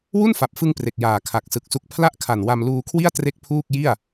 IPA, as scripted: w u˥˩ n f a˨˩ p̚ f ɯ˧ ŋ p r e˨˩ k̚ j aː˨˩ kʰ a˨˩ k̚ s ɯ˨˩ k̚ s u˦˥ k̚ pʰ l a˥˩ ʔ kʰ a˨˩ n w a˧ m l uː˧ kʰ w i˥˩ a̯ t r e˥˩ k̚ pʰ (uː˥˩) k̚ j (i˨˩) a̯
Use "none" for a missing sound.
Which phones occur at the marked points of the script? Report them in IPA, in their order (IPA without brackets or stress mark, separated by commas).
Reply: uː˥˩, i˥˩